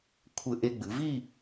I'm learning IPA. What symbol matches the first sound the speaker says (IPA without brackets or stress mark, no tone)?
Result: kʷʰ